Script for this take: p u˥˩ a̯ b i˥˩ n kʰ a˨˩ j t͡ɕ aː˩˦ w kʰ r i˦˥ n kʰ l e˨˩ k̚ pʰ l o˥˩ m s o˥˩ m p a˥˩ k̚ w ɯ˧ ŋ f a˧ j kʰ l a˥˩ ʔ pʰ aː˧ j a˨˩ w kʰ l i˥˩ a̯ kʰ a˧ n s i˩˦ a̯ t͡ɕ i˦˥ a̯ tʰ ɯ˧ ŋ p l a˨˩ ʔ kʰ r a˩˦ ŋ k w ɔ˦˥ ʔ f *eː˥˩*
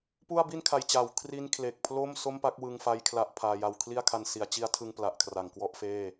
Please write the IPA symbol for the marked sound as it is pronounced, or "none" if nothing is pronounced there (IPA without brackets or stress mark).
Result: eː˥˩